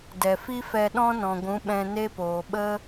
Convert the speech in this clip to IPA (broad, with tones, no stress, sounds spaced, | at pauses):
d ɛ˨ f i˦ f ɛ˧ ɗ ɔ̃˦ n ɔ̃˨ ɡʷ ũ˨˦ ɓ ɛ̃˧ n e˦ p oː˨ ɓ ə˦